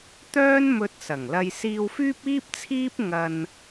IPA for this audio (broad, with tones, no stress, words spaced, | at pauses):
t̪œː˥nmɵ˧t̚sɐ˨˩ŋlɐ˧j siː˧wfyː˥p̚iː˥p̚t͡sʰiː˥p̚ ŋɐ˨n